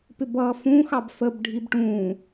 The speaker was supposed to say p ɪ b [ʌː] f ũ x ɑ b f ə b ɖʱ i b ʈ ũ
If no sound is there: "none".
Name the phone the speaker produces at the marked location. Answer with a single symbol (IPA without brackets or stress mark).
ʌː